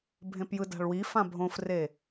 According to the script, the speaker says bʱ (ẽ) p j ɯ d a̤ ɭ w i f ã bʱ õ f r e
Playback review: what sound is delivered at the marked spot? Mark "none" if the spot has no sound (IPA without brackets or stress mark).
ẽ